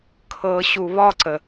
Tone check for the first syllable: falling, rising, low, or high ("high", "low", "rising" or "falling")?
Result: low